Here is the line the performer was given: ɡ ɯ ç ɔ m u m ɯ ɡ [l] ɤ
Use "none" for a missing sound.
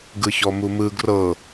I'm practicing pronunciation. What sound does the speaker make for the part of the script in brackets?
r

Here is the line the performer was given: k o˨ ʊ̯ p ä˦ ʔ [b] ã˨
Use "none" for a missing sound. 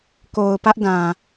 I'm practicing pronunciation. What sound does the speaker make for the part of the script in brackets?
d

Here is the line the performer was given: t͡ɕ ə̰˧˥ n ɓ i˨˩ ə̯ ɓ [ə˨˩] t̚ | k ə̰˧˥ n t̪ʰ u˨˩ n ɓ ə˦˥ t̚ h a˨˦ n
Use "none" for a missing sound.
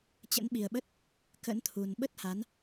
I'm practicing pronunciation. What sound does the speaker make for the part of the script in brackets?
ə˦˥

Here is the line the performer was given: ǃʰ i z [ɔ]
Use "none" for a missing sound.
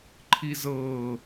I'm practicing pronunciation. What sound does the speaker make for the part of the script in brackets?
ɤ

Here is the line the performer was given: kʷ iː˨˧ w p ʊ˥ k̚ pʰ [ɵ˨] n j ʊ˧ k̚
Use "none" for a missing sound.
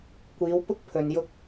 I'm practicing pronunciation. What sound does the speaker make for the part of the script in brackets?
ɵ˨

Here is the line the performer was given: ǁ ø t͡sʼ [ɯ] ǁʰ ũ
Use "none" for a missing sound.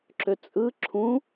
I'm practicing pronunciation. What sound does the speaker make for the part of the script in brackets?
ɯ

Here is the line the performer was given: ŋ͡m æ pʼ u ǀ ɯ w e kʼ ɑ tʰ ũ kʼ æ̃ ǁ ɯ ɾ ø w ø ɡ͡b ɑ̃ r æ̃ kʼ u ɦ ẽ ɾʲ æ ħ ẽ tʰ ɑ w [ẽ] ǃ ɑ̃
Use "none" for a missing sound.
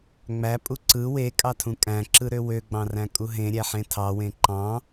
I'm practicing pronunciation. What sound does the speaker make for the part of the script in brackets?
ẽ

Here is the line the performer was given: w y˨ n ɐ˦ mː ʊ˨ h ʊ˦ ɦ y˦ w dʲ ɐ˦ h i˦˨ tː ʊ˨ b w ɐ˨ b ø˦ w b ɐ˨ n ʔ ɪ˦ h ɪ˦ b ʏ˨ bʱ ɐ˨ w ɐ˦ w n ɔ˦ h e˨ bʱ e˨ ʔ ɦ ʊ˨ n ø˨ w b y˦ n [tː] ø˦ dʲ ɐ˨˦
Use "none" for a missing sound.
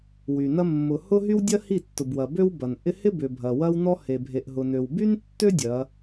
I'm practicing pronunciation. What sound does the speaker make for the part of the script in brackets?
tː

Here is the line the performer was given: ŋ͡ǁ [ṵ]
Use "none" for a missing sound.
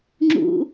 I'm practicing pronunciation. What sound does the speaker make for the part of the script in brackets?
ṵ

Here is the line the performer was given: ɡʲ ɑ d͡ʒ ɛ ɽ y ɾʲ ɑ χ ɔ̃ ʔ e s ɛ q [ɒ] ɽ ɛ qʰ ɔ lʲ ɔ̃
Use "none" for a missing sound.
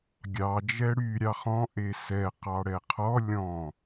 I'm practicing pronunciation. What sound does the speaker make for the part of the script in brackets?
ɑ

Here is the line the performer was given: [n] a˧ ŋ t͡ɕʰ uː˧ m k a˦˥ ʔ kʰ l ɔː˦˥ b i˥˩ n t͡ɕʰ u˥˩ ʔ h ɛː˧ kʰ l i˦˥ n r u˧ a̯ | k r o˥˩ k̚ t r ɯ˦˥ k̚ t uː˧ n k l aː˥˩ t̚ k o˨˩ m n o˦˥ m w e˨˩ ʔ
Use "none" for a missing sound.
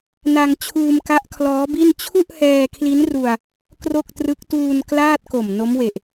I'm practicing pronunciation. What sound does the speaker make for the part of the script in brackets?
n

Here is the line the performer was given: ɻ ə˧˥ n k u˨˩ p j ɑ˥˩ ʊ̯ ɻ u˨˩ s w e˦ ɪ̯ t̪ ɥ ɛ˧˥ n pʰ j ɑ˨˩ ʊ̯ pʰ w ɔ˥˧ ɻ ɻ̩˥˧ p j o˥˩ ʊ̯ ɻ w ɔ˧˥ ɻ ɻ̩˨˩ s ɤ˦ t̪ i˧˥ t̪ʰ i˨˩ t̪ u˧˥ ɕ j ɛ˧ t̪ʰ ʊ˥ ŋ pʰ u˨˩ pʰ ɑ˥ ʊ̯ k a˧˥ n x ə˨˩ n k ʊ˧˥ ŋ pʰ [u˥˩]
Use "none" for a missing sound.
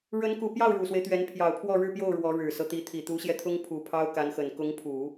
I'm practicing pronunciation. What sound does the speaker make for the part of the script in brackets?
u˨˩˦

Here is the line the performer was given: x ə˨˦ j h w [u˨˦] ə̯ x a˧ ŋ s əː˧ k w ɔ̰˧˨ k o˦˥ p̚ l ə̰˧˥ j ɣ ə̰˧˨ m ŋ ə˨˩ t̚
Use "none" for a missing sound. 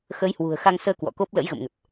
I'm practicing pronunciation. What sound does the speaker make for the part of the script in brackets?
ṳ˨˩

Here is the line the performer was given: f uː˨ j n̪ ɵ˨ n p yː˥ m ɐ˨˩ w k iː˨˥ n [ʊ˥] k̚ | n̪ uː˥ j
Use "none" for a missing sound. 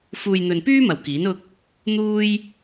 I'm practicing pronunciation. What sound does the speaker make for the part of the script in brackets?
ʊ˥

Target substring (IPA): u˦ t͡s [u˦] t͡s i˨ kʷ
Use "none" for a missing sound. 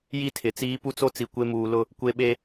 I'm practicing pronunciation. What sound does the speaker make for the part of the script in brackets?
o˦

